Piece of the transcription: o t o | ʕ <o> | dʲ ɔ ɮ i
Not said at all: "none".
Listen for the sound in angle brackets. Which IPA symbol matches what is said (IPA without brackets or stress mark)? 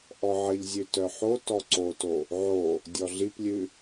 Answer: o